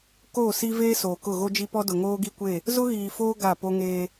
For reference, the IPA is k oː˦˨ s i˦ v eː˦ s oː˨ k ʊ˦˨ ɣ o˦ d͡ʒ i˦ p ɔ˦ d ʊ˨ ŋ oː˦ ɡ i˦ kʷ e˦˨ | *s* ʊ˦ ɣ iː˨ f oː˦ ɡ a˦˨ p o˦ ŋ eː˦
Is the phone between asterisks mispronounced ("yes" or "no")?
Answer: yes